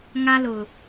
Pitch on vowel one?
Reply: high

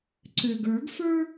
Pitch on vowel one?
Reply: low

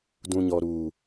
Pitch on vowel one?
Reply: low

